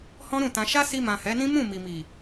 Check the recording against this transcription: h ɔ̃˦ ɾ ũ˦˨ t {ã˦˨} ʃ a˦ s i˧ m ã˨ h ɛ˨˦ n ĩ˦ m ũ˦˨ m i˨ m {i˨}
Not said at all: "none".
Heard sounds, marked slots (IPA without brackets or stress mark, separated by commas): ã˧, i˨